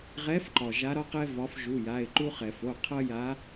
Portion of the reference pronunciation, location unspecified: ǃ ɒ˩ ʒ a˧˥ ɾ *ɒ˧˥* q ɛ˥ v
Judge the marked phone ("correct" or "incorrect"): incorrect